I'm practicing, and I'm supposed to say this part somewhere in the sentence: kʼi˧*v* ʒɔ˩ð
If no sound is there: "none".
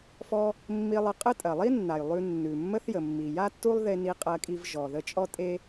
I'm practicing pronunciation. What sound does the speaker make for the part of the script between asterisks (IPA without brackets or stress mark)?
v